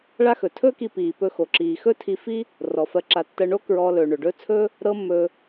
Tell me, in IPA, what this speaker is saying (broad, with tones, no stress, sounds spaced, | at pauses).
ɭ a˥ x ɵ˩ tʰ ɵː˥ k i˧ p iː˩ p ɵ˧ x o˩ ǁ iː˩ x ɵ˥ tʰ i˧ f i˥ | r ɔ˩ f ɜ˧ ǁ a˧ tː ɜ˧ ɳ o˥ k ɹ ɔː˧ l ɵː˩ ɳ ɵ˩ ɖ ɵː˥ t͡sʰ ɵː˥ | ɾ ɤ˥ mː ɵː˧